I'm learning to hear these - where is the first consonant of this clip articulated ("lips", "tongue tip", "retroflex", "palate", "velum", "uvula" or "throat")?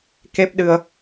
velum